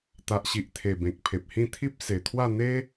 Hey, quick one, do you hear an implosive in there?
no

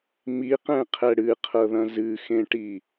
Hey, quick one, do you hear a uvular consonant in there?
yes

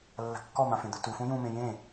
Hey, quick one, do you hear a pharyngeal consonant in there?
no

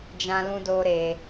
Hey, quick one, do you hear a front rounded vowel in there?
no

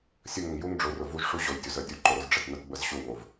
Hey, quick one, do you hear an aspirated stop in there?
no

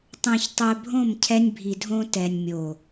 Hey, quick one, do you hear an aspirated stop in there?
yes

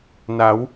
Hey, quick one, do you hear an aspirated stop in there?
no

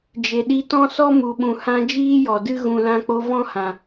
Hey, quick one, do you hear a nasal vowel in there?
yes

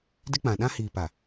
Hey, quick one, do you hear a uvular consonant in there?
no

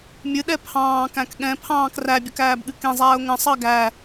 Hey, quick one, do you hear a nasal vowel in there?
yes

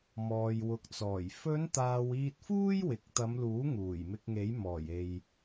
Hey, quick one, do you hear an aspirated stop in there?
no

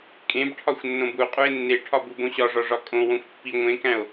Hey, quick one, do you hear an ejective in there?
yes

